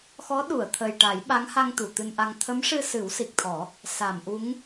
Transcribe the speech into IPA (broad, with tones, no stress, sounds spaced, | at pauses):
x ɔ˧˥ ɗ u˨˩˨ ə̯ t̪ʰ ə˨˩ j ʈ a˨˩˦ j ɓ a˧˥ ŋ h a˧ ŋ t̪ u˨˩˨ t̪ ɨ˧ n ʔ a˧ ŋ t̪ʰ ə˧˥ m ʂ ɨ˧ s ɨ˨˩˦ w s i˨˩ k̚ t̪ʰ ɔ˨˩˦ | s a˨˩˨ m ʔ u˧˥ ŋ